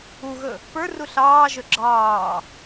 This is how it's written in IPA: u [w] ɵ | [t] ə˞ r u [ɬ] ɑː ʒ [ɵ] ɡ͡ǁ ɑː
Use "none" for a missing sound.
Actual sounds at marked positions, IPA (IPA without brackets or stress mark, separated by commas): ɣ, p, ɬ, ɵ